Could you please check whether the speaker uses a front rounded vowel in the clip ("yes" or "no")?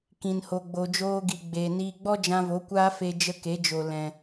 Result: no